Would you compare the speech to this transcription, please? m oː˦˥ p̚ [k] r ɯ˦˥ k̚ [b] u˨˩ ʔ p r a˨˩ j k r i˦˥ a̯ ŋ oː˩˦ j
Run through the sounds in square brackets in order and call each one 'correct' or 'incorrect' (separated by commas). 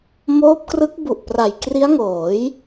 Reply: correct, correct